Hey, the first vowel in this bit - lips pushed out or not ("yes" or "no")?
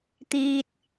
no